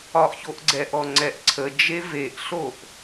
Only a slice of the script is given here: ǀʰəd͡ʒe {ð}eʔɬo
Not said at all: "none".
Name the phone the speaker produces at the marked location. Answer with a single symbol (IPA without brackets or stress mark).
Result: v